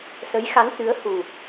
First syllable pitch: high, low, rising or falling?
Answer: rising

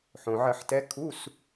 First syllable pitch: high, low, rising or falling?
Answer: low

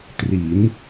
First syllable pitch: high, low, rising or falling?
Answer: rising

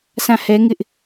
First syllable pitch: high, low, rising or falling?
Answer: falling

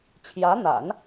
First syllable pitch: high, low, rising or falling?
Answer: rising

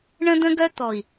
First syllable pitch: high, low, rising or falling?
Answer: high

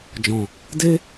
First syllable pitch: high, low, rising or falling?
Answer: low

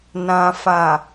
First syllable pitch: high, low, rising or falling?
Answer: low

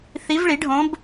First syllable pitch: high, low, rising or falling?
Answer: rising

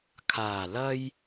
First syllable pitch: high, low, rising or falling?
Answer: low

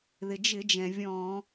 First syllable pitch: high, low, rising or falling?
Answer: low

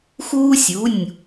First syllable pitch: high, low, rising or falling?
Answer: high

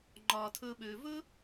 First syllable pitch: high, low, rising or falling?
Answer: low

